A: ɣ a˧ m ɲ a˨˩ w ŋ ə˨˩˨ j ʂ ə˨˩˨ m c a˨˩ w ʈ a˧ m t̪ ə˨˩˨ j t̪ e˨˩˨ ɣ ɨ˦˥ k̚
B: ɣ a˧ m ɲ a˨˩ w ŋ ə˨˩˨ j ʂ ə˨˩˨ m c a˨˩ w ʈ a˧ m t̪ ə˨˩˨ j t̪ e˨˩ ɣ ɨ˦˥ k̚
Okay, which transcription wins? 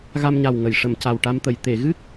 A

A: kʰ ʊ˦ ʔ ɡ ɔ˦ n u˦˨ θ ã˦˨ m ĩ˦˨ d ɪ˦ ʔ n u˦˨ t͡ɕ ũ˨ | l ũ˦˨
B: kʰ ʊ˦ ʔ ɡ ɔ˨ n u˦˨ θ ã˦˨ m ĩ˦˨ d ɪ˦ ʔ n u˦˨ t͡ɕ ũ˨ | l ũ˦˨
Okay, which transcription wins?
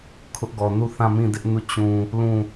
B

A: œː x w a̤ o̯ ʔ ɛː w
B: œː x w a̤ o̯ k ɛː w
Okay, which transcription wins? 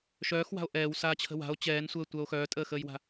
A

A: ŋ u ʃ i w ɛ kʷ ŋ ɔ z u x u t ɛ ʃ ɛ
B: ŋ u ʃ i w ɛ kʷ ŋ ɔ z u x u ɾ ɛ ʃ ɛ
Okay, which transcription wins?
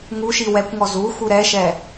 B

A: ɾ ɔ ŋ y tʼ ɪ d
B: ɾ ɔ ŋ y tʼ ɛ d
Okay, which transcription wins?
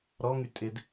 A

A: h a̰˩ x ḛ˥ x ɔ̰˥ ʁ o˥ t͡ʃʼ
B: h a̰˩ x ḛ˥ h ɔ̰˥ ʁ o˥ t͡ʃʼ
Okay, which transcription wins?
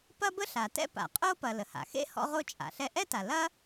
B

